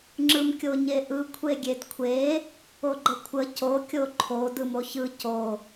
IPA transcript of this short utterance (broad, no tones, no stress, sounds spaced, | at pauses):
ŋ͡ǁ ɯ m kʲ o ɲ e ʔ ɯ kʷʰ e ɡʲ e d kʷʰ e | o ɡ͡ǃ ə kʷʰ ə c o kʲ o ǃʰ o d ɯ m o ç ɯ c o